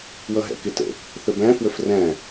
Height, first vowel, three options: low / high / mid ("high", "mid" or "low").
mid